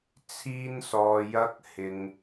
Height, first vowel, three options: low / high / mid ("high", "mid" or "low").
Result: high